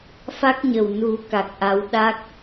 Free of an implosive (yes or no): no